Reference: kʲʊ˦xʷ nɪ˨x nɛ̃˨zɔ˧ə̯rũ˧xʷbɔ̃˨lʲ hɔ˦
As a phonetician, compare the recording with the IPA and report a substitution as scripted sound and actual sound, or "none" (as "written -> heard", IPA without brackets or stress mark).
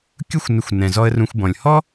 x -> xʷ